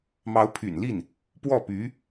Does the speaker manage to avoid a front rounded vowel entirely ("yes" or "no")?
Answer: no